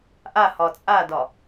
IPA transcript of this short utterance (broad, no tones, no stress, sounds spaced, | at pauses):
ʔ a h ɒ t͡sʼ a d ɒ